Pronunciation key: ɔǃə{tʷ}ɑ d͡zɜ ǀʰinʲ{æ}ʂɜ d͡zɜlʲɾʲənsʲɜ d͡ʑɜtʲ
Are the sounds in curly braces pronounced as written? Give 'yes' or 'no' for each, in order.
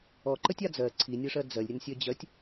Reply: no, no

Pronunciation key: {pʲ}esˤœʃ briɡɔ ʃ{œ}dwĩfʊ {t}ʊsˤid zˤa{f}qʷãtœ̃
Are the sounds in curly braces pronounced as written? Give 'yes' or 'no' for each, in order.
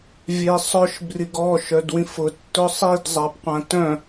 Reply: no, yes, no, no

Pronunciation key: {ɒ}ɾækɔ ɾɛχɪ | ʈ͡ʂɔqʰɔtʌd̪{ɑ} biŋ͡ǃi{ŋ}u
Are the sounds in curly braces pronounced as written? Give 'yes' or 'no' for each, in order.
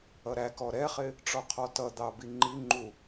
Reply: no, yes, no

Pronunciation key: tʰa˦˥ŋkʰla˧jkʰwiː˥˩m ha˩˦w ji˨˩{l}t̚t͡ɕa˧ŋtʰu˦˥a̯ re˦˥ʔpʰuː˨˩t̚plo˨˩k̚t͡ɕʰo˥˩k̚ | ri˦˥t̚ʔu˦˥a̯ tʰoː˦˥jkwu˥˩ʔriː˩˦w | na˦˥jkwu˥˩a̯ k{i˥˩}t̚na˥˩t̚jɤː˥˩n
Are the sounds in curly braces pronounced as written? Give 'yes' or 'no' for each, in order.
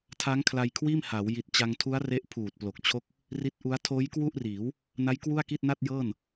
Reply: no, yes

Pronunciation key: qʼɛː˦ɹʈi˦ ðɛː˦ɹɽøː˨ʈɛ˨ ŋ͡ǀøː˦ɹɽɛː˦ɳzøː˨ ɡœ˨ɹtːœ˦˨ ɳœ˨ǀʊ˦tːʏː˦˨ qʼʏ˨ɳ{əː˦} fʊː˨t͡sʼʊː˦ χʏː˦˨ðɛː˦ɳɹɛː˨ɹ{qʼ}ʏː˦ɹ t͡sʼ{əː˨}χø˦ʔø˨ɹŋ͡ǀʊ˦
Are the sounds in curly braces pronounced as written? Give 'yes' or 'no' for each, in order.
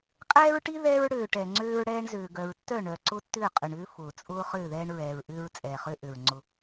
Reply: no, no, no

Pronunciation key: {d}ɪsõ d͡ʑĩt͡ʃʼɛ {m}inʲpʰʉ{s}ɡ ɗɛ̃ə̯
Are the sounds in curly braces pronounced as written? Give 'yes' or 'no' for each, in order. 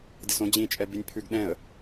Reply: yes, no, no

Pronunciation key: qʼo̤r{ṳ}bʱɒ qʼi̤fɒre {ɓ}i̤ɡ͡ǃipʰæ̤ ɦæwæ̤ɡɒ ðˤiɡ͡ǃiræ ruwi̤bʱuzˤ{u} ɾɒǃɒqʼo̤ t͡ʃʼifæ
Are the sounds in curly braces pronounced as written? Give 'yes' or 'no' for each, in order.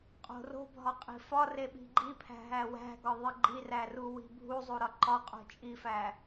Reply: no, yes, yes

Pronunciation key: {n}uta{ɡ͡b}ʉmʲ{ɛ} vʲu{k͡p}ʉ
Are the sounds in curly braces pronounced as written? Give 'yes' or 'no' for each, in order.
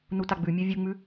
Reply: yes, yes, yes, no

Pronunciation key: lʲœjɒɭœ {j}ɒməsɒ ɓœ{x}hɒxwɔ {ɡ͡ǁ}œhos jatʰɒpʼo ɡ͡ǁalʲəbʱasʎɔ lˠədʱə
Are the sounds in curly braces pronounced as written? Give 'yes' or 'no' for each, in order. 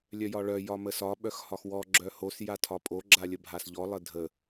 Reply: yes, yes, yes

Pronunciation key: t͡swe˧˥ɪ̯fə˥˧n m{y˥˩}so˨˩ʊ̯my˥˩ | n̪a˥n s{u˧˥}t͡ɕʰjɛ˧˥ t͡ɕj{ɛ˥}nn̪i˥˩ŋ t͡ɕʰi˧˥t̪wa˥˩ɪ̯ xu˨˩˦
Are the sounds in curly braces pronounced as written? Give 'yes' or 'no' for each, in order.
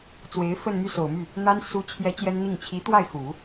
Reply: yes, yes, yes

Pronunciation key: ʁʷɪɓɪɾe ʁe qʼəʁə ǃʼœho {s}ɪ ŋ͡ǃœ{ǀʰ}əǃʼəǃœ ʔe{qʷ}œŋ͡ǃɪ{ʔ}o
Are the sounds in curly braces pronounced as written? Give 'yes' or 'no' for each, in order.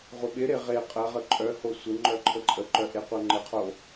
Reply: no, no, yes, no

